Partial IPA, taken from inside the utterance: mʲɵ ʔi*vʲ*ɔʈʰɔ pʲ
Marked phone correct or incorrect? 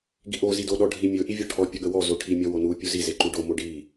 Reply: correct